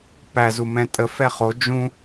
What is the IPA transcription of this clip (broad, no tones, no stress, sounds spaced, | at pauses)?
p æ z u m ɛ̃ tʼ ə f ɛ χ o d͡ʒ ũ